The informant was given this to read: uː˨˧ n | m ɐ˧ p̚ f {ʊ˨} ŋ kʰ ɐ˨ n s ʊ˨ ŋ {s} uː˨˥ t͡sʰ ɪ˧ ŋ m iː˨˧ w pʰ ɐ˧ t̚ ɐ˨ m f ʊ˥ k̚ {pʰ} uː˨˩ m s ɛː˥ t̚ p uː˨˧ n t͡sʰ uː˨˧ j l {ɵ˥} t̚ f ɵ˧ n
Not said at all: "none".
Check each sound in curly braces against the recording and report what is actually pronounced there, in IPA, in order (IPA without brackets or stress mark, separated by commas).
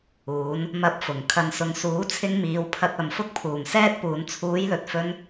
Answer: ʊ˨˩, s, pʰ, ɵ˨